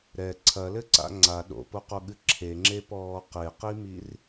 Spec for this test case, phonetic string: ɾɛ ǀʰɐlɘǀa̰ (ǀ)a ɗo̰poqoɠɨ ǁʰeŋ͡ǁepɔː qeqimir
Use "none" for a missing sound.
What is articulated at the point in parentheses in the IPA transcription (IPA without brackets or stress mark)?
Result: ŋ͡ǀ